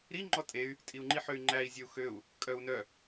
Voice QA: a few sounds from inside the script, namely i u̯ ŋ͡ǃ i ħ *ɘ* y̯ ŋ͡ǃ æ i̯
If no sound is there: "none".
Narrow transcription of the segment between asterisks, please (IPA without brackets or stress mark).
ø